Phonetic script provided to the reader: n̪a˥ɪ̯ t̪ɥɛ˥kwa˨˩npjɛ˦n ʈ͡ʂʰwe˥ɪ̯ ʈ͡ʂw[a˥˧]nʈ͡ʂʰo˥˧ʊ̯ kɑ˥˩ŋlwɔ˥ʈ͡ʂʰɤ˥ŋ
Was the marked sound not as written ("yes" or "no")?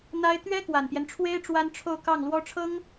yes